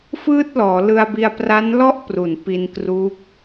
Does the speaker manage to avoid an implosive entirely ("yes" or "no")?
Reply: yes